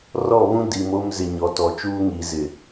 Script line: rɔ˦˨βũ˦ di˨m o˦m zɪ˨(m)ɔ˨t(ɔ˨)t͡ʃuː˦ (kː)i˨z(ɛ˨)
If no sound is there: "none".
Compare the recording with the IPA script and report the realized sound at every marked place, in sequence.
ɲ, ɔ˨, ŋ, ɪ˨

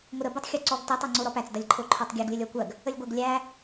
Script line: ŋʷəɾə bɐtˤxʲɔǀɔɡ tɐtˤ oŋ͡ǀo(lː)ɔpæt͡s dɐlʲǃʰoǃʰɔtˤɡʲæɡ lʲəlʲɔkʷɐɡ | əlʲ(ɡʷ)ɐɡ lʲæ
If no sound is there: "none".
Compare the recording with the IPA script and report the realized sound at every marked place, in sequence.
ɾ, ɡʷ

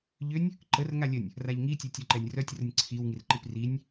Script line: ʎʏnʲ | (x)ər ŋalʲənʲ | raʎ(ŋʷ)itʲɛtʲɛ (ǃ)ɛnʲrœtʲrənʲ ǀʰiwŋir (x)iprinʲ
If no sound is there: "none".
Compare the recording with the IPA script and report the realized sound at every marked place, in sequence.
ǃ, ŋ, ǃ, ǃ

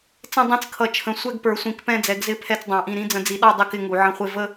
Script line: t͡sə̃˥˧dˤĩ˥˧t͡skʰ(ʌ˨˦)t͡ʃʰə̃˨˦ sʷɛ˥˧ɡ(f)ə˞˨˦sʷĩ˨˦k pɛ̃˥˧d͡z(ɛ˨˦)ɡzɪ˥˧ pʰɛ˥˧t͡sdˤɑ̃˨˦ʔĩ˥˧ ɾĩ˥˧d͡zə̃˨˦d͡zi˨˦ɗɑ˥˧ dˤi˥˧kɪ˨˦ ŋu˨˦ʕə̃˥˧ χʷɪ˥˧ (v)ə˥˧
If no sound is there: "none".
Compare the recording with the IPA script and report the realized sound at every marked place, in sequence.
ʌ˨˦, p, ɛ˨˦, v

